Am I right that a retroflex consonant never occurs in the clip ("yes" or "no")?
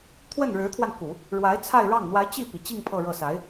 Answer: no